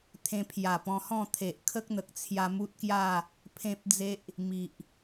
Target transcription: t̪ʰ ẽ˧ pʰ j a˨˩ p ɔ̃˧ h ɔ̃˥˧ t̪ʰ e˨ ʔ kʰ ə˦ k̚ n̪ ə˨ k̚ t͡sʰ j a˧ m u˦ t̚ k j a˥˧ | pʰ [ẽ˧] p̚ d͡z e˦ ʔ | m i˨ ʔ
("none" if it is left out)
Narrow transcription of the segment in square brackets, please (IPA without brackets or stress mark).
ẽ˦